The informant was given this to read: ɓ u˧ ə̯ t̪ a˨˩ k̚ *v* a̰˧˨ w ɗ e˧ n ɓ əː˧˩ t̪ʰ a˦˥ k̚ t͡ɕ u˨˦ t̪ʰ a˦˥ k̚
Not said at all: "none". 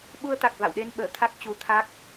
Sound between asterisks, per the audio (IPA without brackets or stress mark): v